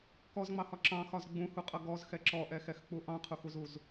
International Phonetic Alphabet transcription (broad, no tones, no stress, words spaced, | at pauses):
kɔzŋ͡mɑhɒ ǁɑ̃xɒz ɡ͡bũhuqʼʌ ɡɔzxɛ ǁɔʔɛxɛxk͡pu ʔɑ̃qʰuxuzuz